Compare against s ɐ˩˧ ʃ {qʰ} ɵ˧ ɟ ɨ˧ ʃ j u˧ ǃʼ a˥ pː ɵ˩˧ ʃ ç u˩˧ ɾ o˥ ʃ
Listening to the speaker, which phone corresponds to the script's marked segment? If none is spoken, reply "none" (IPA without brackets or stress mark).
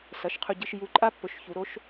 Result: qʰ